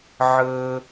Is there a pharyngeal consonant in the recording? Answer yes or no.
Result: yes